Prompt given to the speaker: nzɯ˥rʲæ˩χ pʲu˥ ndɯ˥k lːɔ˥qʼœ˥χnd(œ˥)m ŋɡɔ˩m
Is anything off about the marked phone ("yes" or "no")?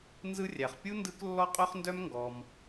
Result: no